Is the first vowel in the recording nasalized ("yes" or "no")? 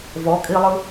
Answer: no